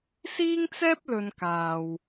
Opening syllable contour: high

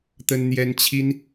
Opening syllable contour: high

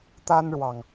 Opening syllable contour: high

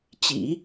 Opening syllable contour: low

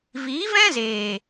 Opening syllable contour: rising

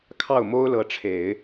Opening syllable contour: falling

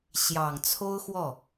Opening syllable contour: low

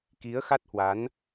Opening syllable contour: rising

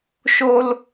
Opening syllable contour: high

